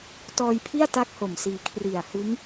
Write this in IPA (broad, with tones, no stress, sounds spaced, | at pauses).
t ɔː˧ j pʰ i˥˩ a̯ t a˦˥ k̚ h o˨˩ m s iː˧ kʰ r i˨˩ a̯ h ɯ˦˥ ŋ